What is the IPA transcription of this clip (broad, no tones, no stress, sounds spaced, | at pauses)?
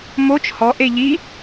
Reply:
m o t͡ʃ h ɔ ʔ e ʎ i